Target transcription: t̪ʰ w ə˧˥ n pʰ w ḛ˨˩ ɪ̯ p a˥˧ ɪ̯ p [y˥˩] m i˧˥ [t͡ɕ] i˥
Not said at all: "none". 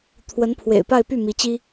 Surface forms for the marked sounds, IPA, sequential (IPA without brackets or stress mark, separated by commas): y˥˩, t͡ɕ